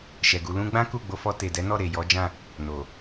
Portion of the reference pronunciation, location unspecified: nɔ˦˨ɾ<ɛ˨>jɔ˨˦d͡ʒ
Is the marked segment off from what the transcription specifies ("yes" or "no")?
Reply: yes